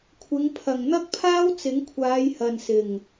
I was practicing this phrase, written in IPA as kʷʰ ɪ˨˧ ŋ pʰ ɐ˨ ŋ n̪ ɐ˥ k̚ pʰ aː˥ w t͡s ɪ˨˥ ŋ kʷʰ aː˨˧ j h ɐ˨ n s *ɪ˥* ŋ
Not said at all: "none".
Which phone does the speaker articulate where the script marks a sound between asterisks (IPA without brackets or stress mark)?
ɪ˨˩